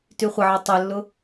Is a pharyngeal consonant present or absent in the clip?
present